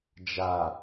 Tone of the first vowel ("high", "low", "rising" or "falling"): low